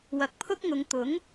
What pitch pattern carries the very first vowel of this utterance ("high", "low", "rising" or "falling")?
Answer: low